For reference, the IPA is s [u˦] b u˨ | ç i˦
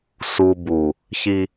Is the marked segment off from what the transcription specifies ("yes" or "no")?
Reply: no